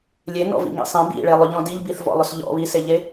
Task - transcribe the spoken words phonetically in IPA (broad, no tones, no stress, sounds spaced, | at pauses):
lʲ e n ɔ̰ v ḭ ŋ ḭ sˤ ẽ b ḭ ɭ e lˠ ʏ ʎ ɔ̃ d i ʎ b i θ v ɔ̰ lˠ ʏ s ʎ ɔ̰ β i s e ʎ e